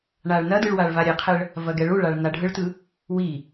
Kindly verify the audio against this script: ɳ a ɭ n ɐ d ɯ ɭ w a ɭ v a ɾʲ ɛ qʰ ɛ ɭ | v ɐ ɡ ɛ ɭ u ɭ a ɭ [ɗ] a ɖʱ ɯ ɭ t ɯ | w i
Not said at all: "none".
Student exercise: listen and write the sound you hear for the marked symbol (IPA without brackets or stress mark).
n